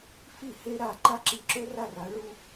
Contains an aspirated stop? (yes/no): no